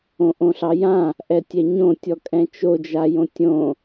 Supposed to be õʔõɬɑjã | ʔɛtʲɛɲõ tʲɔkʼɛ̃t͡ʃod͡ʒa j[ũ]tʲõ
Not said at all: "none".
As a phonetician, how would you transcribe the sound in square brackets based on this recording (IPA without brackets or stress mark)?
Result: õ